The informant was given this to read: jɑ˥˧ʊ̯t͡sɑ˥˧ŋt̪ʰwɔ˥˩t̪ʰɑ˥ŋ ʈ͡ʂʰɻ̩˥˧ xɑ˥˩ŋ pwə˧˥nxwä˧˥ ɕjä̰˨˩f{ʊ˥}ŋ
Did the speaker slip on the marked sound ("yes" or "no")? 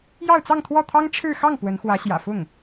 yes